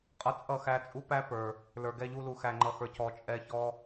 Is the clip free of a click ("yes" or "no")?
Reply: no